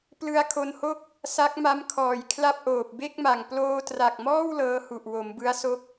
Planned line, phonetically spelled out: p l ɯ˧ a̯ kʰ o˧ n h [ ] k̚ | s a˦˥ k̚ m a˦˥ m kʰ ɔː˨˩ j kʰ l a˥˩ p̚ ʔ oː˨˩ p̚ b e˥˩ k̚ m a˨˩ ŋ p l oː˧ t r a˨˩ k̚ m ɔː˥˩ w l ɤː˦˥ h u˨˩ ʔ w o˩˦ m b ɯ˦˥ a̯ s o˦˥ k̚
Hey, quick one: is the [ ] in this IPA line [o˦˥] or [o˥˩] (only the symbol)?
o˥˩